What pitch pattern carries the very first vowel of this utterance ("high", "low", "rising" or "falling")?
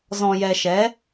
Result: low